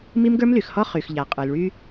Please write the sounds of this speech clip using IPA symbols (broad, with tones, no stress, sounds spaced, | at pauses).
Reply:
m i˦ m ɡ ə˞˦ m l y˨ x h ɔ˦ χ y˨ x ʎ a˨ qʼ ə˞˨ l ɭ y˦